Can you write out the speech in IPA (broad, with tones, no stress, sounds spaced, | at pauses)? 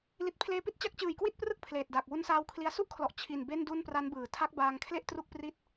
l i˨˩ t̚ pʰ l eː˧ p i˥˩ t̚ t͡ɕ a˦˥ k̚ t͡ɕ ɯː˨˩ j k w i˥˩ t̚ p r ɯ˥˩ k̚ pʰ l eː˨˩ t̚ d aː˨˩ k̚ w u˧ n s aː˧ w kʰ l i˧ a̯ s u˥˩ ʔ kʰ l ɔ˨˩ ʔ t͡ɕʰ i˨˩ n b e˥˩ n d u˥˩ n p r a˦˥ n b ɯː˩˦ tʰ a˦˥ k̚ b aː˧ ŋ kʰ l e˥˩ ʔ t r u˥˩ k̚ p r i˥˩ t̚